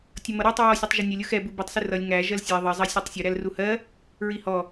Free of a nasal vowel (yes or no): yes